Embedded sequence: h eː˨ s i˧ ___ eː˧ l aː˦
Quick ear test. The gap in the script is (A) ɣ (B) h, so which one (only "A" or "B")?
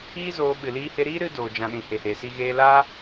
A